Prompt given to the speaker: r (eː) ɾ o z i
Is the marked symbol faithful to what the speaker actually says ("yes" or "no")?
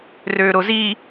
no